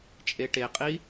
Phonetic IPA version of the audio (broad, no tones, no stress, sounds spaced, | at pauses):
t͡ʃʼ e ʈ e qʼ i